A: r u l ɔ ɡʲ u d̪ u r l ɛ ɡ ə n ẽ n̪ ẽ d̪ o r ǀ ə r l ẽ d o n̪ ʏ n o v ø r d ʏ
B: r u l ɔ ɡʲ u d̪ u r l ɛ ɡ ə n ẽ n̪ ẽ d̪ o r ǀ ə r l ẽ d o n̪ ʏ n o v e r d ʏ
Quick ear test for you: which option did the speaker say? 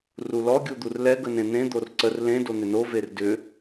B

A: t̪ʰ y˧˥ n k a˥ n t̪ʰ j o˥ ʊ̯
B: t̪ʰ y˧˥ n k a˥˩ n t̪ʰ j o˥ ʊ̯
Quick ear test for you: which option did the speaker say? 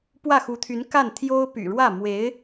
B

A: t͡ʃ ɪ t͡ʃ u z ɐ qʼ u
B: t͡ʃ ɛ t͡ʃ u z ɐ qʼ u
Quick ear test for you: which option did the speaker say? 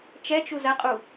B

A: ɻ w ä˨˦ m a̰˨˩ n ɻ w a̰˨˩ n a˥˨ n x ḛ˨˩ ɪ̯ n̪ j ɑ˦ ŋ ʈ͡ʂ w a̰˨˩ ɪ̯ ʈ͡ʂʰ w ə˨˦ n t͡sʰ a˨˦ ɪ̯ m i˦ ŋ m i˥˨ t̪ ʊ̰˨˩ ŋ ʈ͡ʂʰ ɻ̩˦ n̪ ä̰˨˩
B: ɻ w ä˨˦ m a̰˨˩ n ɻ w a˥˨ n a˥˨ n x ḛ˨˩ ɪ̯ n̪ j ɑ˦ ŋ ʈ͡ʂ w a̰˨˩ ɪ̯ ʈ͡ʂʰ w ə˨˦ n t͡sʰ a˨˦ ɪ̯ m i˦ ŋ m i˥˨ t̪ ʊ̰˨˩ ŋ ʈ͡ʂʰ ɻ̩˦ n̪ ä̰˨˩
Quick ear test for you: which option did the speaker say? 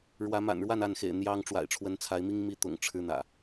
B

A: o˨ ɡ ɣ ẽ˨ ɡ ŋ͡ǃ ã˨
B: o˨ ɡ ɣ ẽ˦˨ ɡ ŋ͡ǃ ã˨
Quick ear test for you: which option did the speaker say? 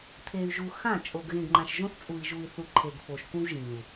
A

